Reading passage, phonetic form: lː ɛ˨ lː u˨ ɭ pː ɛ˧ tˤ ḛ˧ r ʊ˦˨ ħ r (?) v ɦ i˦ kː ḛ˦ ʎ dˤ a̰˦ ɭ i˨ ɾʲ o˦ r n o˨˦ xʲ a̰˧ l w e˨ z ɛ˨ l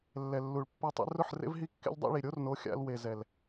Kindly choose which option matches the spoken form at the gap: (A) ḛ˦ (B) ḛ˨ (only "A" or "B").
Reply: A